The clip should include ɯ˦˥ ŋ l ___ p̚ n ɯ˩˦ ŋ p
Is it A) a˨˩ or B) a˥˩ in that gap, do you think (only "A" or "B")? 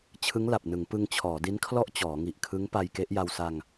A